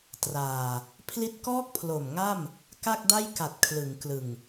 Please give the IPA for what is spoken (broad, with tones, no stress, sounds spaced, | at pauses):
t r aː˨˩ | pʰ l i˦˥ t̚ k ɔː˥˩ k̚ pʰ l o˨˩ m ŋ a˥˩ m | k a˥˩ k̚ d a˥˩ j k a˨˩ t̚ kʰ l ɯ˩˦ ŋ k l ɯ˨˩ ŋ